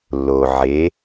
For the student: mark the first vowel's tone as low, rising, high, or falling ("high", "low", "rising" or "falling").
low